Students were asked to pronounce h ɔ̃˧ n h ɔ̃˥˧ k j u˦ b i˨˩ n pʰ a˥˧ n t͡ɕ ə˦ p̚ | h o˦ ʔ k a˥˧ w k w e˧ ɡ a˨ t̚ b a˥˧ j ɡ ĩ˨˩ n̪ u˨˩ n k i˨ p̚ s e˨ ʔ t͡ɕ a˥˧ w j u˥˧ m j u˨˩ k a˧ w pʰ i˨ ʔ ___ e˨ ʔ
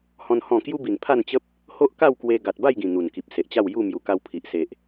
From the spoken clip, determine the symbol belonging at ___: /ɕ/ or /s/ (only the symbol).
s